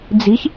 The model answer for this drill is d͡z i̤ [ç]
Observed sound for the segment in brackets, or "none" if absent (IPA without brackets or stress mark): ç